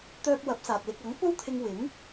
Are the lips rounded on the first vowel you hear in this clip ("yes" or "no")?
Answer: yes